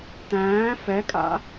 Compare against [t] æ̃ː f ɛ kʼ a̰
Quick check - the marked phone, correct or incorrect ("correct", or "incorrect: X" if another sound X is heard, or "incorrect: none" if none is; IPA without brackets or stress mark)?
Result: correct